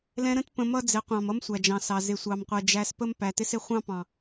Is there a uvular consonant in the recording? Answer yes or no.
yes